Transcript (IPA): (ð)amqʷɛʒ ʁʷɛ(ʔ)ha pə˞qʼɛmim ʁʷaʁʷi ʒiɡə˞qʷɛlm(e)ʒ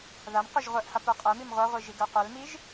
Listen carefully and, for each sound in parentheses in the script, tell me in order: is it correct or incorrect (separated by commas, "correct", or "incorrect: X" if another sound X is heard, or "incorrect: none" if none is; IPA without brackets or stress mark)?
correct, correct, incorrect: i